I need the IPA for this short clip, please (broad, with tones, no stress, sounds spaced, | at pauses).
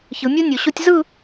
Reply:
ç ɯ˩˧ mʲ u˥ nʲ o˩˧ ɕ o˥ tʲ z ɯ˥˧